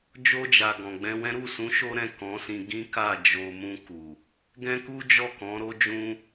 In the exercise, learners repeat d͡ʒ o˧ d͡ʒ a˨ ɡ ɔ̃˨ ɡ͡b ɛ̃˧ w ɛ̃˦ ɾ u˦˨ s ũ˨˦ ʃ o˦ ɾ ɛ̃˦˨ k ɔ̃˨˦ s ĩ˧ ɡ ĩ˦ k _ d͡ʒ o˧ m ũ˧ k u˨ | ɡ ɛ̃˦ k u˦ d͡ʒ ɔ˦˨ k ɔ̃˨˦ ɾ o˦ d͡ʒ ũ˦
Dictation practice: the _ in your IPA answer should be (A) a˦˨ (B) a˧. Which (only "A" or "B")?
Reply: A